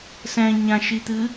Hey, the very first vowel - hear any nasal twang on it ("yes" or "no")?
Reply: yes